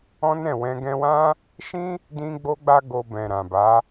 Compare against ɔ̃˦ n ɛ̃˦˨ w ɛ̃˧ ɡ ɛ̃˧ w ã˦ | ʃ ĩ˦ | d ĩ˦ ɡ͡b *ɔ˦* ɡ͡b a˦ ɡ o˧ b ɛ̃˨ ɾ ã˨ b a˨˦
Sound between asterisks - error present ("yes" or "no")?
yes